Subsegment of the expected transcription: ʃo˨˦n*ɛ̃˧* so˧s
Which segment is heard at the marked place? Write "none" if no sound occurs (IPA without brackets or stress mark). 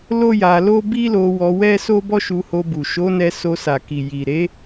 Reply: ɛ˧